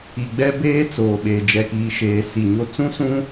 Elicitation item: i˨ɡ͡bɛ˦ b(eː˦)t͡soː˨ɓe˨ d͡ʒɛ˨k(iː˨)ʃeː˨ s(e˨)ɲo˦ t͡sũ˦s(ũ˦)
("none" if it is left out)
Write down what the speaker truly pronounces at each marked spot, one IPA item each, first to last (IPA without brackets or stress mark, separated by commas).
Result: eː˦, iː˨, i˨, ũ˦